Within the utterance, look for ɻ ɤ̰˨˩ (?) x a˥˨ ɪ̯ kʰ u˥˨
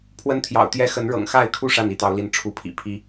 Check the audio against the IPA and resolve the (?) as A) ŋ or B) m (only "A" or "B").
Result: A